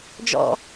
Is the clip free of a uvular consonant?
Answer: yes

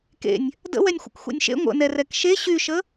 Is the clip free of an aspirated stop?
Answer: yes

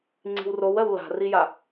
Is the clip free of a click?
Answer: no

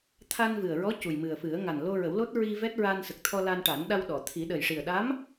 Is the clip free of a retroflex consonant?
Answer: no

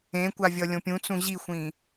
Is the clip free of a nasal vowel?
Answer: no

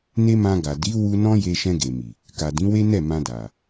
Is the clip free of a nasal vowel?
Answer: no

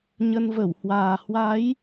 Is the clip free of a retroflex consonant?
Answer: yes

